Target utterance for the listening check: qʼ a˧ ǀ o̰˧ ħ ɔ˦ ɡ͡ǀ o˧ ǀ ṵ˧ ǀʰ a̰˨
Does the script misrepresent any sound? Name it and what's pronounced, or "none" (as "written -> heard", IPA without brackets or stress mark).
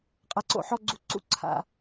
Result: o˧ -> u˧